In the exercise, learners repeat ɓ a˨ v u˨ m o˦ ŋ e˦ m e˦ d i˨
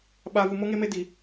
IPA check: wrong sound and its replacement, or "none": none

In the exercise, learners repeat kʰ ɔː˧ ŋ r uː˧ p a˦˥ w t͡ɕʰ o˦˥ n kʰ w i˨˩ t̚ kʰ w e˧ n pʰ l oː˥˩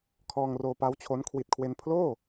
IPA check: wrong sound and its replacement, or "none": uː˧ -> oː˧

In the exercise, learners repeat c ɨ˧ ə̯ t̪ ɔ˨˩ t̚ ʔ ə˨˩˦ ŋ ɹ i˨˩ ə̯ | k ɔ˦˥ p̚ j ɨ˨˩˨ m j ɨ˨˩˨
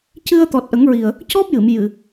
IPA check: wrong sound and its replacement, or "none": k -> c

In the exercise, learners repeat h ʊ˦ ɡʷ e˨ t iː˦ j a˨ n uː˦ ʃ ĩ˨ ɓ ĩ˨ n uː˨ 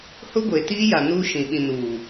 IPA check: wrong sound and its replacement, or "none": none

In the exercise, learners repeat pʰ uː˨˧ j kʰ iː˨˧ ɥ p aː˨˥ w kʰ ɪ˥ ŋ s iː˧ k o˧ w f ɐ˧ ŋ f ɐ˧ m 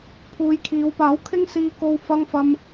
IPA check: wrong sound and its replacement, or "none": ɥ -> w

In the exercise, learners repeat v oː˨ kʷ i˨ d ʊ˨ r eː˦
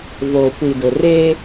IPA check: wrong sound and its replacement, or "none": none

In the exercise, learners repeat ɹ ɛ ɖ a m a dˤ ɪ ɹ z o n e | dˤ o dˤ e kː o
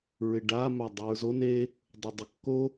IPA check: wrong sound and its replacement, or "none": ɛ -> ɪ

